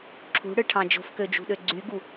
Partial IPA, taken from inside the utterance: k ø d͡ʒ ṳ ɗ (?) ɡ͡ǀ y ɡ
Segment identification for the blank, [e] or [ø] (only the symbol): ø